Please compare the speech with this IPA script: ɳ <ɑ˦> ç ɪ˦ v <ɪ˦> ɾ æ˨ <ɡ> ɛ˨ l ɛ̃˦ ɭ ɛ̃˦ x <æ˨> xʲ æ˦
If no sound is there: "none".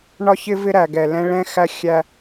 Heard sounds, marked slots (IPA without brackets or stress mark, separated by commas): ɒ˦, ɪ˦, ɡ, æ˦